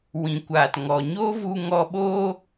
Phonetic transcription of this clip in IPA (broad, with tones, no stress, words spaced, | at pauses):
wĩ˨ kʷaː˨tŋɔ˨ɲoː˦vu˧ ŋɔ˧ɓo˦